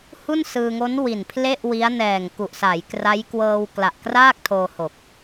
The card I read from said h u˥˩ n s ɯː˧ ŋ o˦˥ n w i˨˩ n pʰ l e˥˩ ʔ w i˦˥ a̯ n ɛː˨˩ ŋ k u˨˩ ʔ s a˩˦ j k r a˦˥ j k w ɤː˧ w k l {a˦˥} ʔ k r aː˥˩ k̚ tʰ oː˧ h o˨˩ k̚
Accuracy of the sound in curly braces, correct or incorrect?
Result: incorrect